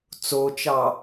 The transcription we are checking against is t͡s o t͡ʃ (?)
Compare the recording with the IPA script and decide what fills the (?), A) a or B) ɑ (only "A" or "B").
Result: B